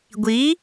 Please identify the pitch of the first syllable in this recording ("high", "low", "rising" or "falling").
rising